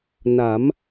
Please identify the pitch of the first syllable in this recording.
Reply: rising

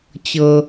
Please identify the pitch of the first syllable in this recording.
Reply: low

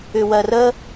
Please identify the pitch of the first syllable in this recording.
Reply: low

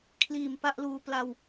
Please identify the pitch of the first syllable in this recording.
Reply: low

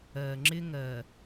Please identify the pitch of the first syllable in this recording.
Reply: low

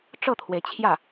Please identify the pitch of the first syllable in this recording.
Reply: falling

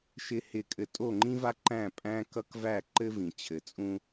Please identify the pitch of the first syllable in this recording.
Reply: high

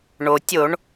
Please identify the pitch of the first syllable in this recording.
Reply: low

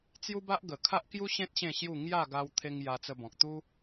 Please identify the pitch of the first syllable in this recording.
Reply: high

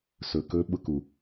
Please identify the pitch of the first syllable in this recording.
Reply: low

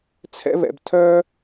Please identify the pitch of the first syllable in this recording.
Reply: high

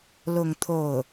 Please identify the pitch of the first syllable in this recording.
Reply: falling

